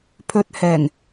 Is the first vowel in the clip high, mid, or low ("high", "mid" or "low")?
mid